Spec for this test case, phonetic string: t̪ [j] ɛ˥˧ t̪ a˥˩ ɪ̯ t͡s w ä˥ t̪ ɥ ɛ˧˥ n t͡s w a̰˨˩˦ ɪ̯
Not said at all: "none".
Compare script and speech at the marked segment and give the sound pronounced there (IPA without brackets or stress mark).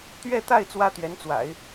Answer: ɥ